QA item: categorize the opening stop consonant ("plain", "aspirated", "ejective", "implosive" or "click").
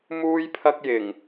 aspirated